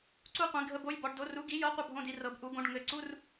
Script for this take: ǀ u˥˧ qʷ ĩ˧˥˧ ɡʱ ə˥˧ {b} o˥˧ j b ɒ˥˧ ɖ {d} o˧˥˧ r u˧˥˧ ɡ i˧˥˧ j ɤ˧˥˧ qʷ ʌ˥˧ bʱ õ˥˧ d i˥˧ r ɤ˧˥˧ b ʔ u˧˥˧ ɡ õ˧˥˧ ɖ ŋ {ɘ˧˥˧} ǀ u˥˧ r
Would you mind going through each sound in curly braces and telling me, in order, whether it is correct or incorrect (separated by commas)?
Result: correct, correct, correct